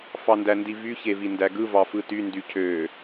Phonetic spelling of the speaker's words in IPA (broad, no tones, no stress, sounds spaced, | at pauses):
f ɑ n d æ n d i v y ç e v i n d æ ɡ ɯ v ɑ f ɯ t y n d y cʰ ø